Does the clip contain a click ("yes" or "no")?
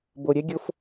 no